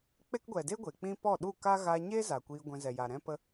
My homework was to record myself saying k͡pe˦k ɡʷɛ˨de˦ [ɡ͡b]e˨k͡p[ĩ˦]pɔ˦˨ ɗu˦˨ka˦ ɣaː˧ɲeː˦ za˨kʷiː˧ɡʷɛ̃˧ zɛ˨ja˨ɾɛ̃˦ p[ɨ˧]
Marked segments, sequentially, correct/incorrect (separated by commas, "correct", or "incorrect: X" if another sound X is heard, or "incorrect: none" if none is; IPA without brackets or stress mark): incorrect: ɡʷ, correct, incorrect: ə˧